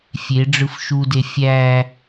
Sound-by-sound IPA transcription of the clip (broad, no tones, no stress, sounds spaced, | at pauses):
fʲ e ɖ͡ʐ ɯ f ʃ u d e fʲ æ